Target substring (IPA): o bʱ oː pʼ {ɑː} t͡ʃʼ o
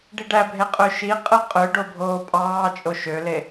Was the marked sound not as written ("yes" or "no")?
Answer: no